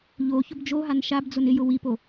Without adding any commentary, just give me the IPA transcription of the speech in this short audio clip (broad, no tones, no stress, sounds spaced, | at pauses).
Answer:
ʎ o ç ʊ b d͡ʒ o ɦ a n ʃ a b d͡z ʊ n ɪ j ʊ w i p o